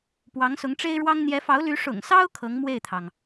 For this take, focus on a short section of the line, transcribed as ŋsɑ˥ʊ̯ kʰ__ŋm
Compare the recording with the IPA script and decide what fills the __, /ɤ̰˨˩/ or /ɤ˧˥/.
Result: ɤ˧˥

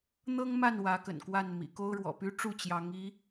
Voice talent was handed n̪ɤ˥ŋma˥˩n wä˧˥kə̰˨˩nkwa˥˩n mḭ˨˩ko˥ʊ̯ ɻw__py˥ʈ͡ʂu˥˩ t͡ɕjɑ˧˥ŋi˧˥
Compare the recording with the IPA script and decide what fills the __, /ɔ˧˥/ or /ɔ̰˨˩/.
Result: ɔ̰˨˩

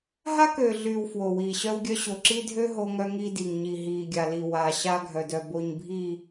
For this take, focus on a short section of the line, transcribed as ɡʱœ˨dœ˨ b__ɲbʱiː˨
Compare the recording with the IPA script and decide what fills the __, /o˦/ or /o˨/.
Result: o˨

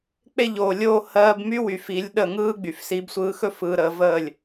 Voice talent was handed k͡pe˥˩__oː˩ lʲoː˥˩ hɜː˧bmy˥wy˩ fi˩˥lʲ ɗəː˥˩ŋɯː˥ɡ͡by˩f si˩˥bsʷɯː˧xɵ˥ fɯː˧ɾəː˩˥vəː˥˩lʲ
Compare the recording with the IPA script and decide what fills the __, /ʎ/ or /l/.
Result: ʎ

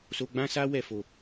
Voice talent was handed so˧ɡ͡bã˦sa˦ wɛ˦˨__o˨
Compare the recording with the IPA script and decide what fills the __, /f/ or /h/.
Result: f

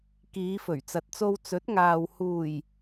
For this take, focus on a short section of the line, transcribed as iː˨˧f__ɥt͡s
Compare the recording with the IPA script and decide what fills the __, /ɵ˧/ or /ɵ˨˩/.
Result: ɵ˨˩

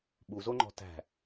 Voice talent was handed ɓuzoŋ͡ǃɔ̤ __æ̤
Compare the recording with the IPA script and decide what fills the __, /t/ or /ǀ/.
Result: t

